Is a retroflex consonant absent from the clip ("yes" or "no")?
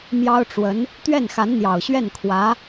no